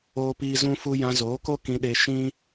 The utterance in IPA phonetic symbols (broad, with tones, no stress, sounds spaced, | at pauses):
oː˦ p iː˦ z ũ˦ f u˦ j ã˧ z oː˨˦ k o˦ k ĩ˧ ɗ e˧ ʃ ĩ˦